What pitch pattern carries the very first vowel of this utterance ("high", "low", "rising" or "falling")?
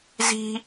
high